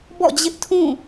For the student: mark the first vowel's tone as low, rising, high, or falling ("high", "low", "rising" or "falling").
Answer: falling